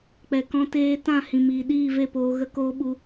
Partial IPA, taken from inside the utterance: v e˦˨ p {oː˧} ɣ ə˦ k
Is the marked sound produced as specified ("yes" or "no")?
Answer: yes